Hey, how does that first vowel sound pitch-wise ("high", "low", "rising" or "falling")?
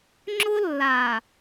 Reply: high